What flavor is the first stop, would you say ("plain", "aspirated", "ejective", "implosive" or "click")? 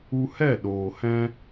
implosive